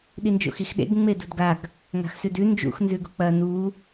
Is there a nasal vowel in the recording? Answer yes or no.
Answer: no